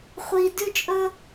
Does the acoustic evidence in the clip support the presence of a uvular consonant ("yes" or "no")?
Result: yes